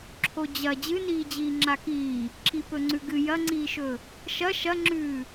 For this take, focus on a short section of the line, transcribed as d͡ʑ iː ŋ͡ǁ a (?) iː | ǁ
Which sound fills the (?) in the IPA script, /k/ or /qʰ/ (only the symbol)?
k